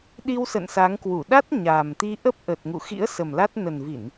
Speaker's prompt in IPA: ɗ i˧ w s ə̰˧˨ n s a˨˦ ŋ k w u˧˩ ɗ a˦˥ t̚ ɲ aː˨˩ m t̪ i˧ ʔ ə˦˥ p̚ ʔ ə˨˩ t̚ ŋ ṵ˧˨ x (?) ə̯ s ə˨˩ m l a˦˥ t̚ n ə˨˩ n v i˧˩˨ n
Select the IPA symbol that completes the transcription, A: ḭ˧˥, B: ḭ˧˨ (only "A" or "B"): A